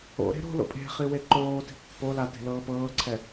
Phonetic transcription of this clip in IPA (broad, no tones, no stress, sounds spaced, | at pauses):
o̰ ɾ e̤ ɾ o̤ l o̰ pʼ e̤ χ i w e ǃ oː t i̤ pː o l a t e̤ l ɤː p ɤː ǀʰ ɛ